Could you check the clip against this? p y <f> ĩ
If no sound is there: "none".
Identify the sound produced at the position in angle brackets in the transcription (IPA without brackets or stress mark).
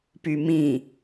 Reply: m